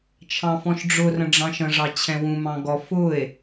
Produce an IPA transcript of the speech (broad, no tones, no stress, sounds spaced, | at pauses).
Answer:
t͡ʃʰ ɑ̃ f ɔ̃ ʃ ɖ͡ʐ ʊ r ə̃ ɖ͡ʐ ɑ̃ ʃ ə̃ ʐ ɑ t͡ɕʰ ɛ̃ w ũ m ɑ̃ ɡ ɔ f ʊ e̯